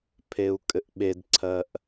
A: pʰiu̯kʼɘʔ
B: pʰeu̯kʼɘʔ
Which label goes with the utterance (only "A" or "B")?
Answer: B